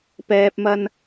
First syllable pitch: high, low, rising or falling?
low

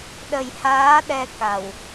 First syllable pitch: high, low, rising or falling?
low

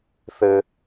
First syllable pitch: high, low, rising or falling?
low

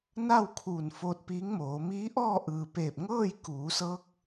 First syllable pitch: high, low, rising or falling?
falling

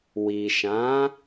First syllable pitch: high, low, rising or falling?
low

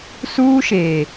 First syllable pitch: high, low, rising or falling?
high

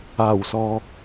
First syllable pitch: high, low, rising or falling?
low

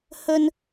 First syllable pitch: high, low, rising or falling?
high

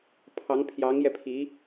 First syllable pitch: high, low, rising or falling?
rising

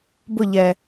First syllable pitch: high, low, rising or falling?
falling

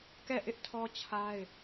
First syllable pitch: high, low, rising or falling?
falling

